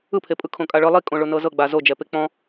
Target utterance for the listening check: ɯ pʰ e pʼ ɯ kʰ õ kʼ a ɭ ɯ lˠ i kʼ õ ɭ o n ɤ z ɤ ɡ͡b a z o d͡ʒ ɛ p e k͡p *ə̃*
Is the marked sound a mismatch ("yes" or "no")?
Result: yes